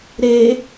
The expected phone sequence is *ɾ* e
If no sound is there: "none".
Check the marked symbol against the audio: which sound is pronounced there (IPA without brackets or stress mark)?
ɾ